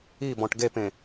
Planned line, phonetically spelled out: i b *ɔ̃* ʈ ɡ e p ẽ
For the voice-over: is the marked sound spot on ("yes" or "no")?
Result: yes